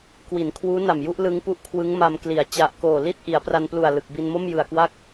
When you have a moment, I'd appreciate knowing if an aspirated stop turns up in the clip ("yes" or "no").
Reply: yes